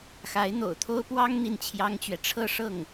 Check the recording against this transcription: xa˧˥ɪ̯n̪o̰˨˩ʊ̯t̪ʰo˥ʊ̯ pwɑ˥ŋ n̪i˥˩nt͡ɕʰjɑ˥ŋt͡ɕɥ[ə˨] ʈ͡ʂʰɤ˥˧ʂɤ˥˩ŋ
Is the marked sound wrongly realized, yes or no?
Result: yes